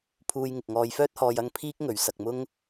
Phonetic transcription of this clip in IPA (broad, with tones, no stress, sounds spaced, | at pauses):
pʰ uː˧ j ŋ ɪ˨ k̚ ŋ ɔː˨˧ j f œː˥ t̚ h ɔː˧ j ɐ˧ ŋ pʰ iː˥ k̚ ŋ ɵ˨˧ ɥ s ɐ˧ k̚ m ʊ˥ ŋ